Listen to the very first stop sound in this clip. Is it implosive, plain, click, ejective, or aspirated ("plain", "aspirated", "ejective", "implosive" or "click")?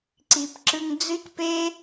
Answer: click